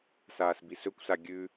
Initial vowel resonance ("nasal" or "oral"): oral